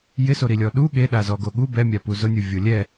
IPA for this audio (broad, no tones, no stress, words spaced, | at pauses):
jɪsoɾilʲɔ ɗu ɠeɗazɔɡo ɠu bɛmʲapu zʊnʲuvʲo lʲɛ